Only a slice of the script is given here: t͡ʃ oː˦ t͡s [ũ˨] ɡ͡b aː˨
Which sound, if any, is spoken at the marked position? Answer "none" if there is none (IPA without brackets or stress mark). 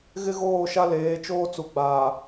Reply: u˨